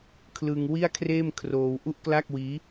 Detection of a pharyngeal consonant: absent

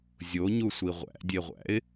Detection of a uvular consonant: present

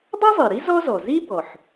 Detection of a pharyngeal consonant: present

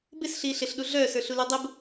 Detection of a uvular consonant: absent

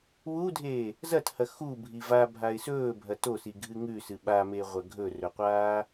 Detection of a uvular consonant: present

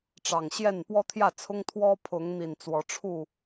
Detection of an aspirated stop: present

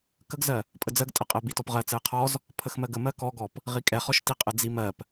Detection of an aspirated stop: present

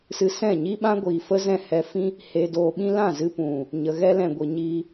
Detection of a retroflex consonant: absent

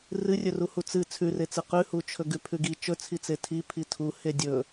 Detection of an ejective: absent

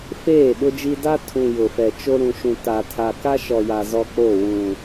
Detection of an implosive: present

